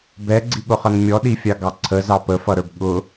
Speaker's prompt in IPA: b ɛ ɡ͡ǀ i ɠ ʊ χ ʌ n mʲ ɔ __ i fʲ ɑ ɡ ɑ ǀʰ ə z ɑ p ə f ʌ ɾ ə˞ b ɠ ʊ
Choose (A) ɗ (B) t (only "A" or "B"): A